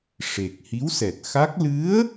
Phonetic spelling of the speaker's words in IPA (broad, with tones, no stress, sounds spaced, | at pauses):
ʂ e˨˩ k̚ h i˧˥ w s ɛ˨˩ t̚ x a˦˥ k̚ l ɨ˧˥ ə̯